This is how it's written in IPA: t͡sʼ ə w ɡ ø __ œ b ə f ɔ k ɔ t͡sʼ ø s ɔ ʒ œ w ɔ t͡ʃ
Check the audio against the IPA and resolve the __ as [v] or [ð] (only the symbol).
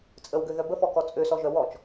ð